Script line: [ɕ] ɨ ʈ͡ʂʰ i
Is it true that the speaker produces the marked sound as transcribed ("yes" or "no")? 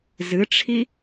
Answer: no